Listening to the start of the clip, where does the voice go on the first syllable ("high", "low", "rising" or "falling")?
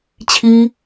high